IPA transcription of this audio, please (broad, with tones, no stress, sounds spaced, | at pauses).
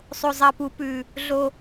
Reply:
sˤ o˨˩ zˤ ɐ˨˩ p u˨˩˦ p ʉ˨˩ | ɮ o˨˩